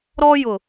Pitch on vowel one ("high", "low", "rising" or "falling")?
high